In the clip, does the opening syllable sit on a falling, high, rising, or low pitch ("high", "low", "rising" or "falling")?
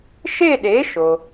falling